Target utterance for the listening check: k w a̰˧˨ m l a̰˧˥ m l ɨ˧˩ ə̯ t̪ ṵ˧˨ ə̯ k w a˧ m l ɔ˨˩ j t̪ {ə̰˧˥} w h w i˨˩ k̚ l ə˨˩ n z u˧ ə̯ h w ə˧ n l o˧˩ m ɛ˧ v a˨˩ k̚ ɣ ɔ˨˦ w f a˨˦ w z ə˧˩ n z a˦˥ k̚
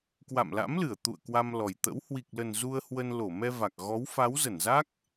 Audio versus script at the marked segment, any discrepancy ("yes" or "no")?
no